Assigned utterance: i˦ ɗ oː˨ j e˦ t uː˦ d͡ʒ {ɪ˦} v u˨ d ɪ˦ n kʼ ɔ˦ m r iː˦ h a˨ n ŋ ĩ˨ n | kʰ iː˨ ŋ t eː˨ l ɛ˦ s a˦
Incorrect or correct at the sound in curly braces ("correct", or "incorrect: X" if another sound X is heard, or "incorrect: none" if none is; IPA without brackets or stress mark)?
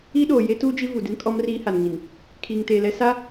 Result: incorrect: i˦